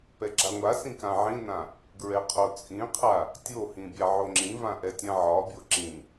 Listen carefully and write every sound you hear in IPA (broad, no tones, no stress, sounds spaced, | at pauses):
p ɛ ɡ͡ǁ a ŋʷ a s ĩ k ã ʕ ĩ n ã | ɡ ɹ ɛ qʰ o t͡sʼ ĩ qʰ a | tʲ o h ĩ bʲ a ʕ o ŋ͡ǁ ĩ v ã ʔ ɛ tʲ ã ʕ ɒ bʲ o ǁ ĩ